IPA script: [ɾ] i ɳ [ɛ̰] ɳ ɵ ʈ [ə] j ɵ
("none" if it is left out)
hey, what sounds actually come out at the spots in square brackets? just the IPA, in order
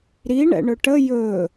ɾ, ɛ̰, ə

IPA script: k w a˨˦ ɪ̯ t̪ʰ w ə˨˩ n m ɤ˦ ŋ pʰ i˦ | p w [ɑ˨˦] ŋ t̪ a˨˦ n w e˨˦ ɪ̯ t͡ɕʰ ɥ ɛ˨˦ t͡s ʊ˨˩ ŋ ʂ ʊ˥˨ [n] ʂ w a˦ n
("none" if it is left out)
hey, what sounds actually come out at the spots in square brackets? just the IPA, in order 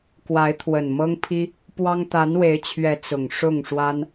ɑ˦, ŋ

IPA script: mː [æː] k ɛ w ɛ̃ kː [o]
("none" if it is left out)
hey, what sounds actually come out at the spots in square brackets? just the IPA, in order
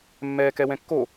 ɛː, o

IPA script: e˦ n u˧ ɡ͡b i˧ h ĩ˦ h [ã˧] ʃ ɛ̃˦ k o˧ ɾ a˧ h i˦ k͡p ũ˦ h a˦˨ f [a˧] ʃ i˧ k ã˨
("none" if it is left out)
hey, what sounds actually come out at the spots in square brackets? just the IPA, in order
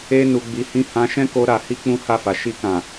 ã˧, a˨

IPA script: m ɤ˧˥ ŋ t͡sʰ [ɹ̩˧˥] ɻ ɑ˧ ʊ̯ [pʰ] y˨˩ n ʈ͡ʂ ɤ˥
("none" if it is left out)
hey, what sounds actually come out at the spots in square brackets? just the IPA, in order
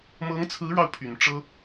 ɹ̩˧˥, pʰ

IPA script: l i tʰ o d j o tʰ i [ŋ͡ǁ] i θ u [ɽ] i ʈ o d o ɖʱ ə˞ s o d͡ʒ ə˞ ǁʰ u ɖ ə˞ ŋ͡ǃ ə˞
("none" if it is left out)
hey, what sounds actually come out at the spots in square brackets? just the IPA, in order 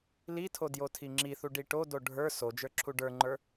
ŋ͡ǁ, ɖ

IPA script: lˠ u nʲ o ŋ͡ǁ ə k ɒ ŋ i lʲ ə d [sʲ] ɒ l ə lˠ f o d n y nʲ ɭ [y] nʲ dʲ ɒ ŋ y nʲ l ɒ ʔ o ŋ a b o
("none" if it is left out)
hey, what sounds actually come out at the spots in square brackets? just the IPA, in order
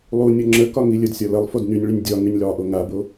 sʲ, y

